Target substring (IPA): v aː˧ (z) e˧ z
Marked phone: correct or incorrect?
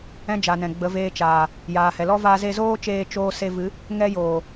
correct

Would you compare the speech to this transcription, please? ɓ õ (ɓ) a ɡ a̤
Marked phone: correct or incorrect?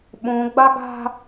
incorrect: ɡ͡b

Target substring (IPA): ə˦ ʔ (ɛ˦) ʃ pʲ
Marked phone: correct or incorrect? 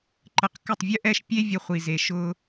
correct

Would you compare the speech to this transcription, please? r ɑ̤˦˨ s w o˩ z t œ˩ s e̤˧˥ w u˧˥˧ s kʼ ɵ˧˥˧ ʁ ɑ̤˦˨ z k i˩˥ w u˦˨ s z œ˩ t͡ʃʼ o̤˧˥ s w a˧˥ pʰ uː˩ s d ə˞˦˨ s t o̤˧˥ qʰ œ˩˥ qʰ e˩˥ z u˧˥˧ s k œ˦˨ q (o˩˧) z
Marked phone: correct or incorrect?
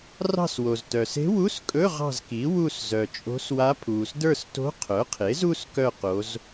correct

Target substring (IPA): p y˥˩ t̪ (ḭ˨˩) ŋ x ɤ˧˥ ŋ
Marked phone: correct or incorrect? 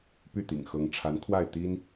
correct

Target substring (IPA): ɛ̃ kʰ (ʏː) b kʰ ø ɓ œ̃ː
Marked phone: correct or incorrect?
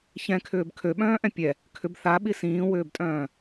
correct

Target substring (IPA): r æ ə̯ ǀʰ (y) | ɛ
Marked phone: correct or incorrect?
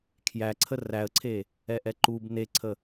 incorrect: e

